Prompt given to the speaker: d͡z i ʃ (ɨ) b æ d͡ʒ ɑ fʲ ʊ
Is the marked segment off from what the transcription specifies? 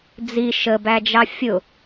yes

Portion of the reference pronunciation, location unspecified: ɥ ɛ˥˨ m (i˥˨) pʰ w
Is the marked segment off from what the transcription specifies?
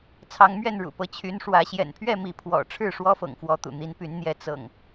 yes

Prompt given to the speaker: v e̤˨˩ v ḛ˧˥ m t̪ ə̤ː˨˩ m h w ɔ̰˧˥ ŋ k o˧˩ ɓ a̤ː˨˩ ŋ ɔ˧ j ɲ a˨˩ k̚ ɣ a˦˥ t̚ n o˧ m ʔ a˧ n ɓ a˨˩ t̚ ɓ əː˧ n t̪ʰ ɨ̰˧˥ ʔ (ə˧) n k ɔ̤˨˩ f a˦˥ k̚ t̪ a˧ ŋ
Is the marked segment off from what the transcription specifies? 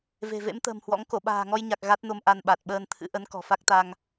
yes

